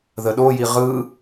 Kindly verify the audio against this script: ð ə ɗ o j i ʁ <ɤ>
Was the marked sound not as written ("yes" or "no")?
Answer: yes